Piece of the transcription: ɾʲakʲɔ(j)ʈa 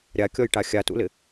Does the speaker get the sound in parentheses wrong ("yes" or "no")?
no